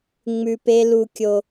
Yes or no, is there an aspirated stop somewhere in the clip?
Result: no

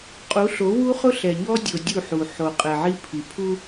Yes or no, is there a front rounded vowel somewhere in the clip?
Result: no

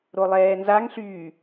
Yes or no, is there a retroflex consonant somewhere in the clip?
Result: no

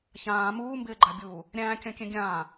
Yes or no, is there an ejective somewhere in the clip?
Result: no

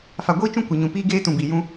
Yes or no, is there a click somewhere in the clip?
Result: no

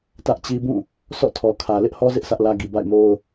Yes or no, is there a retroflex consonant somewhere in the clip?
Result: no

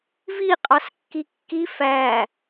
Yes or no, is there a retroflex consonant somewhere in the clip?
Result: no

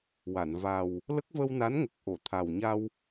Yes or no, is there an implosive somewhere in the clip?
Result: no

